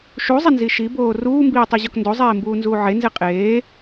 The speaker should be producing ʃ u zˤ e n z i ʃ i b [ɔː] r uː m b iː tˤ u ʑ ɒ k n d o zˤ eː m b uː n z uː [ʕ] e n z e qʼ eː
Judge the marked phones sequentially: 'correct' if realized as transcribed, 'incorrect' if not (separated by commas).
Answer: incorrect, correct